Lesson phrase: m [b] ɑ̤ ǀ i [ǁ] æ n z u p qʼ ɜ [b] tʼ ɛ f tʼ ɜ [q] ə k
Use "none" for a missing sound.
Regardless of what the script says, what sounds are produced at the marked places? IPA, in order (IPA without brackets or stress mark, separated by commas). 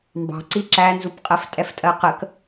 b, ǁ, f, q